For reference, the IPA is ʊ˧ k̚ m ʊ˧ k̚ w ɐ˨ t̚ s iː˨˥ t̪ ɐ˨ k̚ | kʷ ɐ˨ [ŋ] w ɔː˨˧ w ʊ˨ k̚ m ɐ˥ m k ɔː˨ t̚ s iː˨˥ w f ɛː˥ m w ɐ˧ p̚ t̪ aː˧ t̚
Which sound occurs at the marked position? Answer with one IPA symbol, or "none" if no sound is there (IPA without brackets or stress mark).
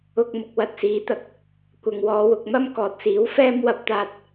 ŋ